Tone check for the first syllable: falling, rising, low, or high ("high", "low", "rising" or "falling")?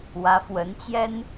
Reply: rising